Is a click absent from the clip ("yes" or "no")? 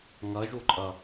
no